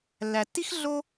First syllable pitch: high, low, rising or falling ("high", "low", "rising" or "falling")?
low